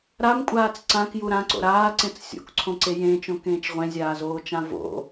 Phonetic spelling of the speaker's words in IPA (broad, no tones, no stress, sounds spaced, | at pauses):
ɾ a m kʷʼ aː t͡s ǀ ã k j u ɾ ã ǀ o̰ ɾ aː ǀ ẽ t͡s sʲ o̰ k ǀʰ õ ǀ e j ẽː t͡ʃ õ k ẽː t͡ʃ ʁʷ ẽ zʲ aː z oː t͡ʃ ã v o̰